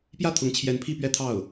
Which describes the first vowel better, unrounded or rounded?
unrounded